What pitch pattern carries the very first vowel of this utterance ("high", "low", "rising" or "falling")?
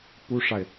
high